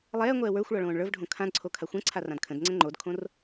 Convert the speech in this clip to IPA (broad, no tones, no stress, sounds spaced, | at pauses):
lˠ ɛː ŋʷ ɛː w ə˞ xʷ ɭ ɒ ɭ õː ɳ ɭ ə˞ v ɖʱ õ kʰ ã d ǀʰ o kʰ a xʷ ɛ̃ ǀʰ a r ã d kʰ ə̃ d ŋ͡ǀ ɛ̃ ŋ͡ǃ o d kʰ õ r